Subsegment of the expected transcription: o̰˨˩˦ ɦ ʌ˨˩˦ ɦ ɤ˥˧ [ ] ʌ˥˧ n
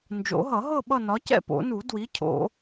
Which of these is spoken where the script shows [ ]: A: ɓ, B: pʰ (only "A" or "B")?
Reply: A